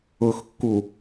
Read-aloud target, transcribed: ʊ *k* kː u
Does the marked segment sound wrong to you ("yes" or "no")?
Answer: yes